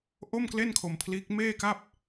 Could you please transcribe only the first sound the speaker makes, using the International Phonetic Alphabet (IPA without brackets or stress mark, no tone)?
ʔ